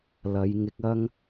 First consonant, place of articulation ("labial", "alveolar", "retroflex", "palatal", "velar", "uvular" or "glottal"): alveolar